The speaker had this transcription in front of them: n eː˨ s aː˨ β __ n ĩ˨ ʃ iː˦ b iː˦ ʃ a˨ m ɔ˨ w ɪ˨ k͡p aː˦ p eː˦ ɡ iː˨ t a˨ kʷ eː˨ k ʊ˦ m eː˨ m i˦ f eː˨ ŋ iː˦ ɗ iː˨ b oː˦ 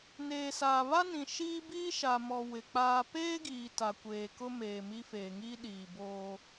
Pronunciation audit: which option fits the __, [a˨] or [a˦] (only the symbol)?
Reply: a˦